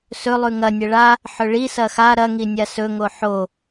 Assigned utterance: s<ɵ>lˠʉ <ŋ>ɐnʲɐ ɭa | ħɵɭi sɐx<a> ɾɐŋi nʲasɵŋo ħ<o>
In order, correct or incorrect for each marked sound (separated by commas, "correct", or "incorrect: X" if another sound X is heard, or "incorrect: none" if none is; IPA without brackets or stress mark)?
correct, correct, correct, correct